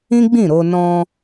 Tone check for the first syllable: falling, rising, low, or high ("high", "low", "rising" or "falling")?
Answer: high